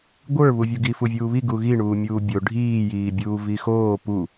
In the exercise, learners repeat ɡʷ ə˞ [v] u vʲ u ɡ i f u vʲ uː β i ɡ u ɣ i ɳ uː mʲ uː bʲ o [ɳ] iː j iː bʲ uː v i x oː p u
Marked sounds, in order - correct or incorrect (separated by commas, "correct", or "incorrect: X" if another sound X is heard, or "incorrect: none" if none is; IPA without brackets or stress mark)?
incorrect: β, incorrect: ɖʱ